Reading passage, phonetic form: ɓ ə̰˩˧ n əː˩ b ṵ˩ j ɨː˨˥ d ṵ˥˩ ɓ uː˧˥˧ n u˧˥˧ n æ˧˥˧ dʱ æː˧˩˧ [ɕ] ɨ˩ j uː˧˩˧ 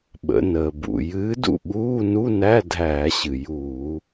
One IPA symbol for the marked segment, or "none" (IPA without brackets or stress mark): ɕ